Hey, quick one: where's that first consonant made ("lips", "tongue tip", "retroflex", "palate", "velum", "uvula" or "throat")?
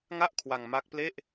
velum